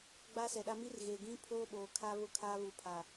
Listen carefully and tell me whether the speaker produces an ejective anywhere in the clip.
no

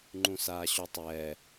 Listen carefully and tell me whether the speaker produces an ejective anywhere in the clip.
no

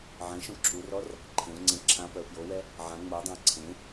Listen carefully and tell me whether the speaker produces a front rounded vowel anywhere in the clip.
yes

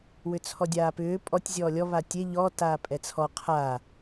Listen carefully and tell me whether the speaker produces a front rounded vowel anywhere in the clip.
yes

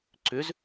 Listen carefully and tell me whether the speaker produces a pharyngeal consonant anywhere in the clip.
no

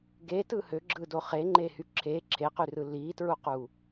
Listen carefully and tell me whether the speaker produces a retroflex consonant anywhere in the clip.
no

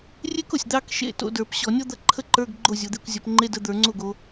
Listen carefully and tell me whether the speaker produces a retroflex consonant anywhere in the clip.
no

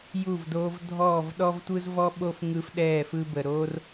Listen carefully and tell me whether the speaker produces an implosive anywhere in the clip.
yes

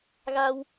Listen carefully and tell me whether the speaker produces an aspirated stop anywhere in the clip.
no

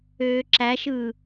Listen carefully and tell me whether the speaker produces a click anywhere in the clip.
yes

